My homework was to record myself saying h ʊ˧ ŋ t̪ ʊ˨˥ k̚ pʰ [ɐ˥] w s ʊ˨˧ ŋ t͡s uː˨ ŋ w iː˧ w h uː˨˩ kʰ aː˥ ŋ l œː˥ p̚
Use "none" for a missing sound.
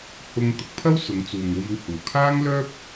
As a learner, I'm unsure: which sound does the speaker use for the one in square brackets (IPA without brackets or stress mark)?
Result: ɐ˥